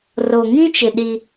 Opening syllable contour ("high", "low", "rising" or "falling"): low